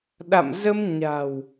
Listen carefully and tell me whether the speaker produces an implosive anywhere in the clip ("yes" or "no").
yes